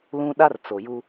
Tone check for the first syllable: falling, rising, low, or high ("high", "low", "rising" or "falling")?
high